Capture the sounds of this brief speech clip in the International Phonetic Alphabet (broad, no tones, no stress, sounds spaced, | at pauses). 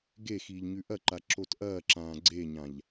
ɡ e x iː ʎ ɲ ʉ ʔ ɐ ǃ a ǁ o t ʔ ɐː ǁ ãː ɡ͡ǀ e ɲ ã ʎ